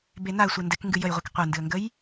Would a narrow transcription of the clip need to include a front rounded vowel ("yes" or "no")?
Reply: no